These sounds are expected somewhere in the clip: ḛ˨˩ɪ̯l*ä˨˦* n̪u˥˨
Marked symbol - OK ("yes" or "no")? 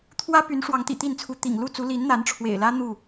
no